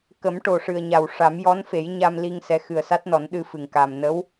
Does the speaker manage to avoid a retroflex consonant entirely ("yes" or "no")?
no